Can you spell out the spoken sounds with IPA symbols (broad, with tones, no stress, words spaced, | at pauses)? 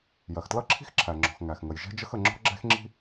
jɜ˩xtlʌ˥ǁʰi̤˥x ǁʰæ˩ ŋ͡ǁɔ̤˩x ŋæ˩xŋə˩j ʒɛ̤˥d͡ʒə˥xə˩ ŋ͡ǁɔ̤˥ɡ͡ǁɛ̤˥xŋ͡ǁi̤˥